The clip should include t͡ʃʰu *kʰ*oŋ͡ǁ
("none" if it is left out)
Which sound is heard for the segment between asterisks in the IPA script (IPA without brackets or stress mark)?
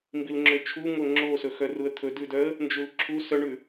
ŋ